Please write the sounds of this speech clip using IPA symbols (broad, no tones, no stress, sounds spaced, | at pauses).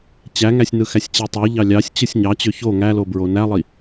t͡ɕ æ ŋ æ sʲ n ɯ x æ sʲ t͡ɕ i tˤ o ʎ ɑ lʲ ɑ sʲ t͡ɕ ɯ sʲ ɲ ɑ t͡ɕ ø ç o ŋ æ l o b ɹ o n æ lˠ i